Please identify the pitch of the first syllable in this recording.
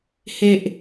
low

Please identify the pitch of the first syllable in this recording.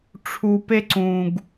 low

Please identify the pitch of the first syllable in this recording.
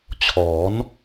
rising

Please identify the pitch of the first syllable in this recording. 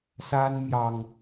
high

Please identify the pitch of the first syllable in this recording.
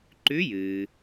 rising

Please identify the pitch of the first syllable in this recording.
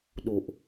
low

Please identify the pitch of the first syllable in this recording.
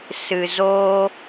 low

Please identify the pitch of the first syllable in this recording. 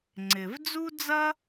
low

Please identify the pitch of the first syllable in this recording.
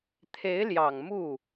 rising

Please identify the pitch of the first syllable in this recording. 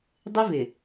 high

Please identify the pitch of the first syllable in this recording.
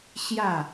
falling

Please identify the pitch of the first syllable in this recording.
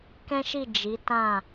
high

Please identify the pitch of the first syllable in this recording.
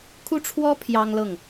high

